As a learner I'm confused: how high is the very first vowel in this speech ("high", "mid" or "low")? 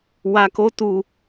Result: low